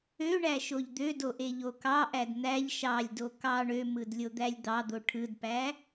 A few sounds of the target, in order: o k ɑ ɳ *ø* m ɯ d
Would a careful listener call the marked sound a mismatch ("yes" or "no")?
no